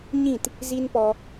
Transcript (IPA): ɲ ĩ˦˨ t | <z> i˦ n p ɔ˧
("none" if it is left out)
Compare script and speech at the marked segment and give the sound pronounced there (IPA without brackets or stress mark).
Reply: z